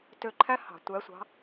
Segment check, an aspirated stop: present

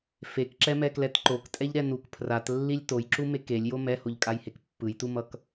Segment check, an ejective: present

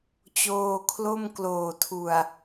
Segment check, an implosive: absent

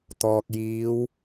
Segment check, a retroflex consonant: absent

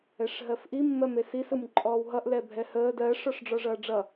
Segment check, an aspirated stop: absent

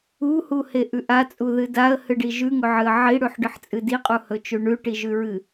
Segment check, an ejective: present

